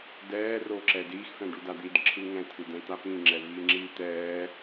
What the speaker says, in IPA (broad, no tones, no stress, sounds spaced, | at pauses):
d ɛː r o ǁ ɛ d iː x f ɛ̃ ɖ u d a d̪ i d ǁʰ ɯ ŋ ɛ̃ tʰ ɯ d̪ ɛ̃ t̪ a p ĩ ŋ͡ǁ ɛ v iː ŋ͡ǁ iː t̪ ɛː